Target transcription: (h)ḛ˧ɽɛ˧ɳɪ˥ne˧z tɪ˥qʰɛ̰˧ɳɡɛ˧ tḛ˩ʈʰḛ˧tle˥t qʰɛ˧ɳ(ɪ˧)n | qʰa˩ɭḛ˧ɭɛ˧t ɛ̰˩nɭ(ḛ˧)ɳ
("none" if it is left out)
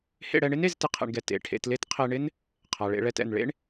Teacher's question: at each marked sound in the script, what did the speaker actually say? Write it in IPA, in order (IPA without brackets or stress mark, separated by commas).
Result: h, ɪ˥, ḛ˥